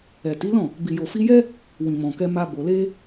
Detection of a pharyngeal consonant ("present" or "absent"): absent